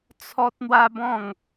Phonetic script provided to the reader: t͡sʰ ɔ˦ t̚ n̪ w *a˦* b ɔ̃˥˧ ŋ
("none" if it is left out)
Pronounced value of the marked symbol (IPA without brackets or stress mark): a˦